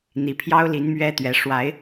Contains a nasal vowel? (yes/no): no